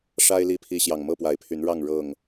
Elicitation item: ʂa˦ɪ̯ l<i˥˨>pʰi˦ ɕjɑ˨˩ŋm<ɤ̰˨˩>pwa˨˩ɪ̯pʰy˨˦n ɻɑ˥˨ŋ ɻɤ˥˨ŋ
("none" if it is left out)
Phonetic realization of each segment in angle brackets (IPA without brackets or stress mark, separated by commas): i˥˨, ɤ˥˨